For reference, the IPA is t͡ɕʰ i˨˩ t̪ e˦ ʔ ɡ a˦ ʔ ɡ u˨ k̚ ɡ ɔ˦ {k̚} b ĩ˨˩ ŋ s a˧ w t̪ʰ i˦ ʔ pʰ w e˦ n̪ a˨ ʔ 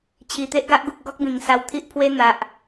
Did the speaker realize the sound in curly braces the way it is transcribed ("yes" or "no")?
yes